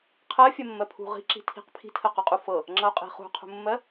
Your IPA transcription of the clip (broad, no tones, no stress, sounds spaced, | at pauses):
qʰ ɜ fʲ ɜ mː ɜ pʰ ṳ ʁ i̤ ǁ i̤ tʰ i̤ q pʰ i̤ tʰ ɜ q u qʼ u f ɤ | ŋ͡ǁ ʌ o̯ qʼ i̤ χ ṳ qʰ ṳ mː ɜ